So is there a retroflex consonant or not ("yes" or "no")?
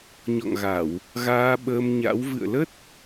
no